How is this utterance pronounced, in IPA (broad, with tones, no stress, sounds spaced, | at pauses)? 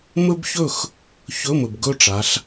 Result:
m ɵ˥ b ç ɵ˥˨ x | ç ɵ˧˥˧ m ɵ˨ b ɡ ɵ˥˨ ʈ͡ʂ a˨˦ ɬ